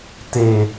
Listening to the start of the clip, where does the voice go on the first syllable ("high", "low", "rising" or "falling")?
high